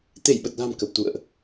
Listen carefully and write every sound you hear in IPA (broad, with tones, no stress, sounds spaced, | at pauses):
t̪ e˧˩ j ɓ ə˨˩ t̚ l a̤˨˩ m k ə˨˩ p̚ t̪ ṵ˧˨ ə̯ ʔ